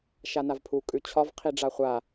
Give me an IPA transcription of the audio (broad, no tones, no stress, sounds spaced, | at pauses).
ʃ a n a v pʰ u kʼ ʉ t͡ɕʰ ɒ v qʰ i ɖ͡ʐ a χʷ a